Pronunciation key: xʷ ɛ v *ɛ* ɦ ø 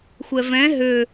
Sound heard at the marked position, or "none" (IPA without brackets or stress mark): ɛ̃